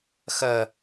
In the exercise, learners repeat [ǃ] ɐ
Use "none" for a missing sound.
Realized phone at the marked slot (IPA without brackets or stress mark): x